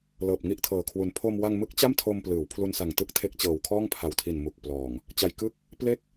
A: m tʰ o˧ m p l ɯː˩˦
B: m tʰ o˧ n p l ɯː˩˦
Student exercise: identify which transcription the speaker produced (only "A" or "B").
A